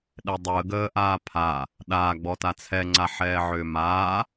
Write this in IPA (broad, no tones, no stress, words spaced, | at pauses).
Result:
ɗɛdˤuə̯ ɡəːʔaːpʰa | ɗaːɡ͡bɔta t͡sʰɛŋ͡ǀaħɛː ʕʏːmaː